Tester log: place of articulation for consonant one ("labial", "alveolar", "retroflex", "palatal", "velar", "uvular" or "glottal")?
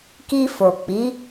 velar